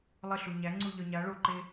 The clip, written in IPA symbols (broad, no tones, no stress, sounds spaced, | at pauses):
lˠ ə ɬ u ɲ æ ŋ͡ǀ u ʎ œ ɲ a ɭ o ǃ e